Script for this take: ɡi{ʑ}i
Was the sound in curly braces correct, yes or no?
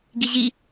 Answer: yes